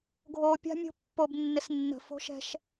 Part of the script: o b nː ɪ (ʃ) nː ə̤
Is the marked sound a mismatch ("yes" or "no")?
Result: yes